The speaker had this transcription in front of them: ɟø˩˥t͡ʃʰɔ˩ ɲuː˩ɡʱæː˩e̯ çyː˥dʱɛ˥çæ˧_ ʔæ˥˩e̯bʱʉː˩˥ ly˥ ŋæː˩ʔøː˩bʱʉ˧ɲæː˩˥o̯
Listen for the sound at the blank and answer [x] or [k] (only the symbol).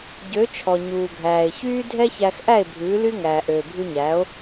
x